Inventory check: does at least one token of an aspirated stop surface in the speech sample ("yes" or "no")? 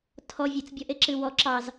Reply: yes